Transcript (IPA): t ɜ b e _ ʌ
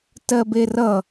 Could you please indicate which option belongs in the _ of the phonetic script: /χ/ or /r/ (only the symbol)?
r